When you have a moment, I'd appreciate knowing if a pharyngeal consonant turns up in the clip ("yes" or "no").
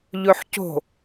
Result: yes